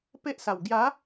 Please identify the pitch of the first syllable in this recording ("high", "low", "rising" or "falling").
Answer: high